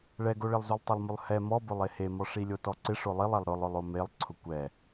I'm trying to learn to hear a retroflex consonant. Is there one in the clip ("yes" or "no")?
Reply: yes